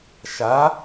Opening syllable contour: rising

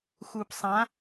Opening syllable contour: low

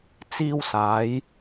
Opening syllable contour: high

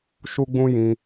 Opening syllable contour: high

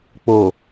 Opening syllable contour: low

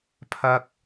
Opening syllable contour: high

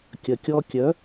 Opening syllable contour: low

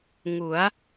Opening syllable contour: rising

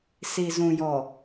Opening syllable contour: low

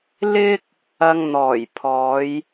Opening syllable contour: high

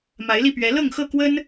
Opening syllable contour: rising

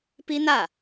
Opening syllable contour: high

